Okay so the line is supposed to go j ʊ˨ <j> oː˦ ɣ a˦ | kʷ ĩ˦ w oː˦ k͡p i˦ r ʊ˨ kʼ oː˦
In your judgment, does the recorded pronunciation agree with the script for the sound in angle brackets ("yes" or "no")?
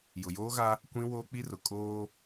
yes